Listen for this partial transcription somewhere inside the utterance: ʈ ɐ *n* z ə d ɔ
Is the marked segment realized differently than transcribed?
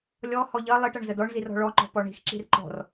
yes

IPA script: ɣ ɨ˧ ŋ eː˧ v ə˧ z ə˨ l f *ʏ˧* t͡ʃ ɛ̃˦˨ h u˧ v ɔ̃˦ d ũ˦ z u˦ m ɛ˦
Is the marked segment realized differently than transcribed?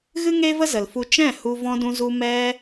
yes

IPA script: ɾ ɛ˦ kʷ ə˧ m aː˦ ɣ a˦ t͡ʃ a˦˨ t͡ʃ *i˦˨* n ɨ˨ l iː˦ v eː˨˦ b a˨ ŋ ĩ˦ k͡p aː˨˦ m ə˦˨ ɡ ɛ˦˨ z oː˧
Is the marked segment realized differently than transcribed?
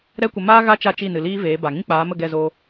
no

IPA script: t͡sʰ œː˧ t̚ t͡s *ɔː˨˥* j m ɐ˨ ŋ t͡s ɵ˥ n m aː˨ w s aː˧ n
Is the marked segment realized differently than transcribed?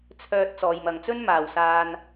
yes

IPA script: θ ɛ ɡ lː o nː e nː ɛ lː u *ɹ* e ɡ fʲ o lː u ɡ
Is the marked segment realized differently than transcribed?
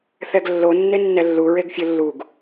no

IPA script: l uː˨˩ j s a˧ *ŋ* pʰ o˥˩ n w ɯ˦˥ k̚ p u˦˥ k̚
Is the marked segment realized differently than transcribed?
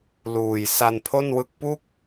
yes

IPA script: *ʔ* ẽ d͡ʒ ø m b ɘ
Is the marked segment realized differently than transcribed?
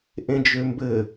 no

